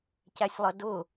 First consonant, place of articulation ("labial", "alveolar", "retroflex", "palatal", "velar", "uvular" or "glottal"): palatal